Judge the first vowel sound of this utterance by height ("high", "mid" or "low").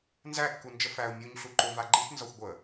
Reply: low